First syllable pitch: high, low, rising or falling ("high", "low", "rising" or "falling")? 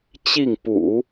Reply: falling